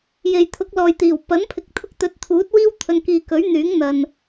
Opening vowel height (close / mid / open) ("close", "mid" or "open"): mid